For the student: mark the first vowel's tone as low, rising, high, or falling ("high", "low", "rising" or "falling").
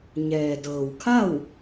low